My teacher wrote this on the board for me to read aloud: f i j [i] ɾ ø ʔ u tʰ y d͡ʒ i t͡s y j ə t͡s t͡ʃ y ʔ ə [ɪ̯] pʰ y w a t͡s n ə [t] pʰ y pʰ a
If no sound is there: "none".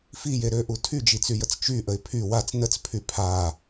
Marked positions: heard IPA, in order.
e, ɪ̯, t͡s

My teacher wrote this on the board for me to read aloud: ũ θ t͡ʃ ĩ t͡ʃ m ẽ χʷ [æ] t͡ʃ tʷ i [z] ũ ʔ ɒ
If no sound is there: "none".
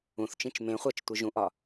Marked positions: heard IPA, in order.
æ, ʒ

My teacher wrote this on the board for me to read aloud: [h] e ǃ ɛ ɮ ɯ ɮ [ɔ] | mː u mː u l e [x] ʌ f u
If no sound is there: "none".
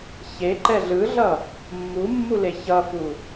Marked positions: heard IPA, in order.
ç, ʌ, ç

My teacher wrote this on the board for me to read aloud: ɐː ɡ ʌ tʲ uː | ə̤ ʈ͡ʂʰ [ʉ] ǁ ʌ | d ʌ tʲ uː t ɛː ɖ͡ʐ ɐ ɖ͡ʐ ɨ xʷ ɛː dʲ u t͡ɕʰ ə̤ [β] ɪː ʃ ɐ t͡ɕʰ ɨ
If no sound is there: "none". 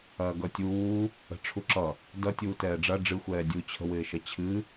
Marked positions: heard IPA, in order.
u, w

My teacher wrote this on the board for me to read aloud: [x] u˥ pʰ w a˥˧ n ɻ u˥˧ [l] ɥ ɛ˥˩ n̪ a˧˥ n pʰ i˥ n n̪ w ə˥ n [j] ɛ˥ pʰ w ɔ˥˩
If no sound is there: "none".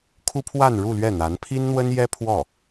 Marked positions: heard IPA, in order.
kʰ, l, j

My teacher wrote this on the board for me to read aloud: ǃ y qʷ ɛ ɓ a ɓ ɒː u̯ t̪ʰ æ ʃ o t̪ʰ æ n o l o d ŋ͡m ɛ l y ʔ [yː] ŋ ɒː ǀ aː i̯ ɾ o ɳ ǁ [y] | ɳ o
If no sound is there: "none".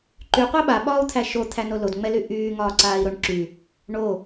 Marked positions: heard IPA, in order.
yː, y

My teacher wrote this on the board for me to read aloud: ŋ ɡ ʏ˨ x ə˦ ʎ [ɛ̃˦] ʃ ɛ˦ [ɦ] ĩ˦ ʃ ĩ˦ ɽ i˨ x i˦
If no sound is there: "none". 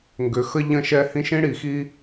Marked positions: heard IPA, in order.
ə̃˦, h

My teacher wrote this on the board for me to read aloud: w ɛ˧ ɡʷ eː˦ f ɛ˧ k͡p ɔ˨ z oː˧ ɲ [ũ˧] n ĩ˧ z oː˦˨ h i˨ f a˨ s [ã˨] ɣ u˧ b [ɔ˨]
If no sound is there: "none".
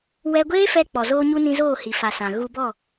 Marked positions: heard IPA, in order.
u˧, ã˨, ɔ˦˨

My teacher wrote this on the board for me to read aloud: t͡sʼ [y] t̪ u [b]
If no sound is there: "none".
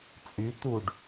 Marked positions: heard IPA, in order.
y, ɖ

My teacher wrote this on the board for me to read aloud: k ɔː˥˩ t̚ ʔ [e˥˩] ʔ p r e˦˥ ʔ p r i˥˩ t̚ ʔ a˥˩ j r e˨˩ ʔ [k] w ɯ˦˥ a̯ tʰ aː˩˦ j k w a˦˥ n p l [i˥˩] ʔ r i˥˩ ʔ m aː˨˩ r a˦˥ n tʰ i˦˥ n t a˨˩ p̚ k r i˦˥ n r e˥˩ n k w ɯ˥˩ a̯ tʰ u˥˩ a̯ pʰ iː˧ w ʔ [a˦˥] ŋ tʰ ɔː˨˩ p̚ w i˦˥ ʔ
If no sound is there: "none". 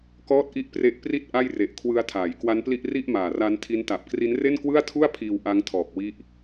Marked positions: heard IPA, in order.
i˥˩, kʰ, i˥˩, a˦˥

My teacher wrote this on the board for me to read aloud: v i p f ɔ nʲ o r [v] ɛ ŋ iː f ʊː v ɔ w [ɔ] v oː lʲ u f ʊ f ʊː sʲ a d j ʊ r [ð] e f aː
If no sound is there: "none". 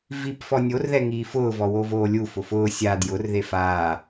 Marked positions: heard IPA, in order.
ð, o, ð

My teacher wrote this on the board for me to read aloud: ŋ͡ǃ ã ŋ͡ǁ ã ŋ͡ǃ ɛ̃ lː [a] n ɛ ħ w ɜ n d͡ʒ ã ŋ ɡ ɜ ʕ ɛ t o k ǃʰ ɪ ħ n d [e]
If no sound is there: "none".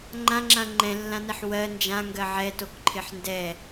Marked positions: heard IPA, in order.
ã, ɛ

